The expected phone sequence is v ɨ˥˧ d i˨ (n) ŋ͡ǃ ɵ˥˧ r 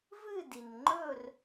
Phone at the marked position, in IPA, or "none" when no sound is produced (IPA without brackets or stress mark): n